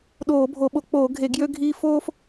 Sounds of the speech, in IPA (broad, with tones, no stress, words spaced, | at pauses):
ɗoː˧˩˧bʱo˧˩˧ɓo˧˩˧ k͡poː˧˩˧ɡʱe˧˩˧ ɡjø˦ɡʱiː˦ foː˦f